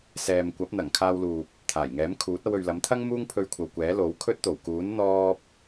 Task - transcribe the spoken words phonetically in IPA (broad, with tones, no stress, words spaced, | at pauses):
sɛː˨mkʷɐ˨˥p̚ n̪ɐ˨˩ŋkʰaː˧wluː˨p̚ | t̪ʰaː˨˩jŋɛː˨˥mkʰuː˨˥t̚ ɐ˧wɵ˨ɥlɐ˨˥mt̪ʰɐ˥ŋ muː˥ŋpʰɵ˧ɥkʷʰɐ˨wkʷɛː˨˥ lo˨˥wkʰɵ˥t̚ t̪o˨˩wkuː˨˥n n̪ɔː˥p̚